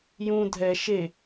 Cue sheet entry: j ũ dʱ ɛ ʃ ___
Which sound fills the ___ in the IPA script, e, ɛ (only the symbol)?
e